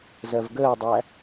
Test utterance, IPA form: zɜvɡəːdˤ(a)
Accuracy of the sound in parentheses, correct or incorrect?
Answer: incorrect